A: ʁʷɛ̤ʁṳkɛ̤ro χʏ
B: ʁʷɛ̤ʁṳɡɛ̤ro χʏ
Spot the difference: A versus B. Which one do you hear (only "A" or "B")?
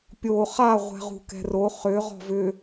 A